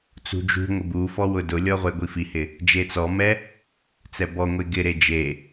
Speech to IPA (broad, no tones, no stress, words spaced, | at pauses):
t͡sṳd͡ʒṳŋʷɪ bu fɔwʊdʊlʲɔ ʁʷeɡʷifihɪ | d͡ʒet͡sɔmɛ | t͡sɛbɔŋʷe ɡɪɾe d͡ʒe